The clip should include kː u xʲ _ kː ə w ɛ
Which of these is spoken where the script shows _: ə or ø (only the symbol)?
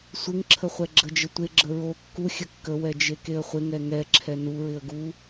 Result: ə